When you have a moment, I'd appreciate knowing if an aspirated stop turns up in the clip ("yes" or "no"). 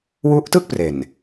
no